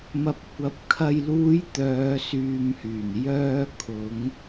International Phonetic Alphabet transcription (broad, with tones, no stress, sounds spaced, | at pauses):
m ɐ˨ p̚ kʷ ɐ˨˥ p̚ kʰ ɐ˨ j l uː˨˧ j t̪ œː˨˧ s yː˨ m h yː˨˩ n j œː˧ kʰ ʊ˨˧ ŋ